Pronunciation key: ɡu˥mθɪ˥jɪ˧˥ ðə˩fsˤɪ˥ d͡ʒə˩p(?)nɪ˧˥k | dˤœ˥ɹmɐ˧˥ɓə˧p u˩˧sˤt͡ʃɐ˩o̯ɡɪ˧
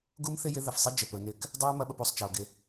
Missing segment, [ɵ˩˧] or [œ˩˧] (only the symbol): ɵ˩˧